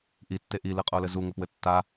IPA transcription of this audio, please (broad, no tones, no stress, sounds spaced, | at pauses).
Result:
ʔ i tː e ʔ i l ɨ qʼ o l ɘ z u ŋ ɘ p w ɘ tː a